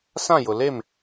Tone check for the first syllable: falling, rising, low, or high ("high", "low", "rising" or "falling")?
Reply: falling